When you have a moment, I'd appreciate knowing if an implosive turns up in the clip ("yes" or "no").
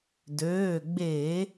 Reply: no